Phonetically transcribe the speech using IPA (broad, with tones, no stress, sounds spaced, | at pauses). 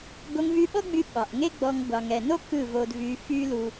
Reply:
ɡ o˧ ŋ v y˧ ɓ ɔ˦ ɡ͡b y˧ ɓ ɑ˨ ʔ ŋ e˦ ɡ͡b ɔ˧ ŋ ɡʷ ɑ˨ ŋ ɛ˨ n o˦ k ɯ˦˨ v o˧ d v y˧ f y˦ l u˧